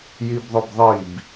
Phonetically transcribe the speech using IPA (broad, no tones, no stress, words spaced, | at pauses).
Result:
jibðˤʊbðˤib